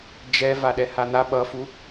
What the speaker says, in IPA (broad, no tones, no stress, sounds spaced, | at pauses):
d͡ʒ ɛ v a ɗ ɛ h a n̪ a ɓ ʌ f u